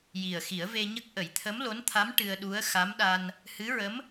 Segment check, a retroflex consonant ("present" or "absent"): present